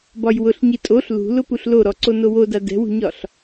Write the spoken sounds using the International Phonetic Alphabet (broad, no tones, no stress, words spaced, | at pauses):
bɒjwʊɬ ɲitʼoɬ lṳlʊ puɬloɾɔǀo nowoda dɛ̤wṳɲɒɬ